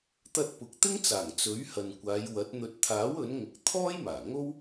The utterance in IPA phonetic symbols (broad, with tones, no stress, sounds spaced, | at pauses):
t̪ ɐ˧ t̚ p ʊ˨ k̚ t̪ ɪ˥ ŋ t͡s aː˨˩ ŋ t͡s ɵ˨˥ ɥ h ɐ˨ n kʷ aː˨˧ j w ɐ˨˥ t̚ n̪ ɵ˨ t̚ t̪ʰ aː˨˥ w ɵ˨˥ n ŋ ʊ˨ k̚ t̪ʰ ɔː˥ j m aː˨˩ ŋ o˥ w